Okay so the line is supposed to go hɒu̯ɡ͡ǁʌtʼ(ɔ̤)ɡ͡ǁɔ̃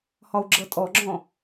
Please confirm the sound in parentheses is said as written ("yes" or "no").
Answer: no